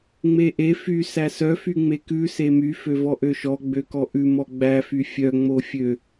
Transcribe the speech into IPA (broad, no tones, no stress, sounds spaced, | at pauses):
ŋ͡m e ʔ e f y s æ s œ f y ŋ͡m e k ʉ s e m y f ø v ɔ ʔ ø ʃ ɔ ɡ͡b ø k ɔ ʔ ʉ m ɔ ɡ͡b æ f y fʲ œ ŋ͡m o fʲ ø